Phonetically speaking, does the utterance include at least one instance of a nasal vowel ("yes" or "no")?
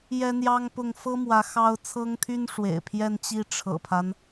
no